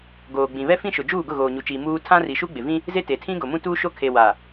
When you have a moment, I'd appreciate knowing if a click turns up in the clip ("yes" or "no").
no